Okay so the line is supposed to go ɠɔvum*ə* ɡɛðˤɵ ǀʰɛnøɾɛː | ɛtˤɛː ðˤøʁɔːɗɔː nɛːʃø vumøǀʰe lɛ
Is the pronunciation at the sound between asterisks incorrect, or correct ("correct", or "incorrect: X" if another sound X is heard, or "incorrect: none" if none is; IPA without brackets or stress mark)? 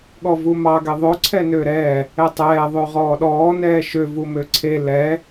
incorrect: ɑ